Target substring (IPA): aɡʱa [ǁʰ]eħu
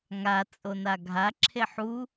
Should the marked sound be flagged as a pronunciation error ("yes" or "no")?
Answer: no